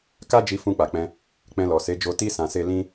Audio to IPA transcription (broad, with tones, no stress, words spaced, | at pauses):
ka˦d͡ʒi˧ fũ˧k͡pa˨k͡pɛ̃˧ | k͡pɛ̃˧lɔ˨ se˨˦d͡ʒo˧ ti˦ sã˧se˦ lĩ˦